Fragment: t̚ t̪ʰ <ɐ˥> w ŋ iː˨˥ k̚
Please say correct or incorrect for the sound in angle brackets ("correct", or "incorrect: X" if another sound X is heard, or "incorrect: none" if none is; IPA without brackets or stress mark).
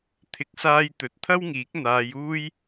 correct